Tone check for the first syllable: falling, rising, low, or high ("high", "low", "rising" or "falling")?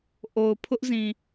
low